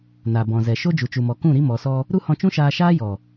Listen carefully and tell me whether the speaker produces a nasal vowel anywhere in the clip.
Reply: yes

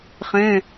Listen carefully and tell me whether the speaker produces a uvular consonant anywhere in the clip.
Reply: yes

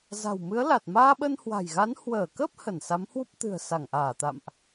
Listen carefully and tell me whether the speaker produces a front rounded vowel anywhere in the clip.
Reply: no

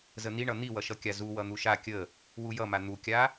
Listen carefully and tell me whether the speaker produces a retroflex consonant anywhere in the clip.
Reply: yes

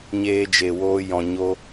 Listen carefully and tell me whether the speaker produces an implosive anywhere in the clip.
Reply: no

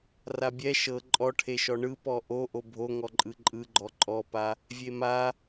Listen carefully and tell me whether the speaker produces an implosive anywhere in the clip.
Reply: no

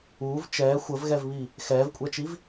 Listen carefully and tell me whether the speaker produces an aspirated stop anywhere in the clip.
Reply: no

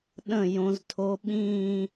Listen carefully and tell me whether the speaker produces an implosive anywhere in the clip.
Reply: yes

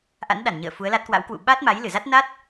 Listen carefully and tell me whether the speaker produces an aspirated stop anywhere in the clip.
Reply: no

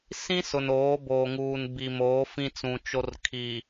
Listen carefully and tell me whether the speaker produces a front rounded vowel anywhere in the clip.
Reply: no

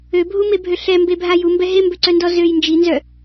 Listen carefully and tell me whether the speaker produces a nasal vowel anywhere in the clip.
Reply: no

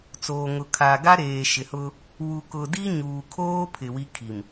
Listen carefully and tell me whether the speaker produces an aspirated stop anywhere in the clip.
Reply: yes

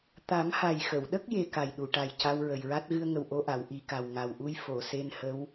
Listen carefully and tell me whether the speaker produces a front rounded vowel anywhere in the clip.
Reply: no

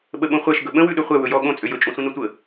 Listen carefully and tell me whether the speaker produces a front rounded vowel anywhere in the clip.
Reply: yes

